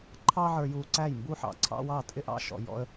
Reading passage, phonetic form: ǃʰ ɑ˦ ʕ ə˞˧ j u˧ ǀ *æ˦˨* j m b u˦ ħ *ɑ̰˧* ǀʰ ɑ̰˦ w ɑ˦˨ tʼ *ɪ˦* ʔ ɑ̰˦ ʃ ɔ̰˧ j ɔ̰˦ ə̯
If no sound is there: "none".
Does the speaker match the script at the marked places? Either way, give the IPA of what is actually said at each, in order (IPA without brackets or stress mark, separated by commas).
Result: æ˦˨, ɑ̰˧, ɪ˦